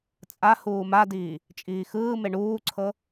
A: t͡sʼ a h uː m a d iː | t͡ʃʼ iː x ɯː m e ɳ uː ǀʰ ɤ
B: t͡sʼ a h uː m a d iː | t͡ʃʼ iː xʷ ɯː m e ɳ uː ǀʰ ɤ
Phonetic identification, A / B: A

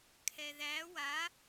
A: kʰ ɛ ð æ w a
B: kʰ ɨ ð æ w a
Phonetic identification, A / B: A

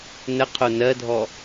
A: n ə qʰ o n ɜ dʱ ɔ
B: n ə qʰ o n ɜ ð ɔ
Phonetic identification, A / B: A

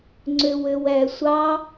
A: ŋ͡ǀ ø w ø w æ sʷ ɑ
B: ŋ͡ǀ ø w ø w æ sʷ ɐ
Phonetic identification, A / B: A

